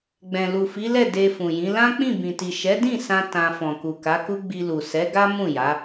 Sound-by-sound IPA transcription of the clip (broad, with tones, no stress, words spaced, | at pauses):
ɡ͡bɛ̃˨lu˨fi˨˦lɛ˦˨ de˧fũ˨jĩ˨˦ lã˦k͡pĩ˦˨bĩ˨ti˨ ʃɛ˨˦dĩ˦˨sã˧ tã˧ fɔ̃˨ku˨ka˨˦ku˦ ɡ͡bi˧lu˨sɛ˨˦ɡa˦ mũ˦˨ja˨˦